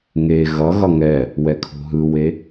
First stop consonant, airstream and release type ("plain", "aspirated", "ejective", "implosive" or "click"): aspirated